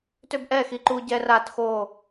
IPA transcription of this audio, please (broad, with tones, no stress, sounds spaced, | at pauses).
t ø˦ b ʔ ɛː˦˨ x i˦ ǃ uː˦ ɟ ɛ˦ r aː˦ t x o˦˨